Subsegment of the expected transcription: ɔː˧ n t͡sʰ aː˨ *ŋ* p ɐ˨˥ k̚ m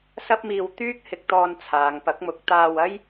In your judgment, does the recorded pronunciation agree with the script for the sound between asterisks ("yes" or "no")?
yes